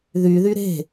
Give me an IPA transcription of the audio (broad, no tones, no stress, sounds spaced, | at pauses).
ð y ð y ɾ e̤